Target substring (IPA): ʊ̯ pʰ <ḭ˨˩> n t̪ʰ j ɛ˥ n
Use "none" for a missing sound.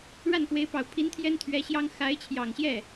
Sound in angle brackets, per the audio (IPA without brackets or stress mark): i˧˥